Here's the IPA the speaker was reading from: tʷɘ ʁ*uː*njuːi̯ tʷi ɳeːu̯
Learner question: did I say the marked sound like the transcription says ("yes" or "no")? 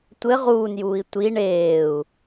yes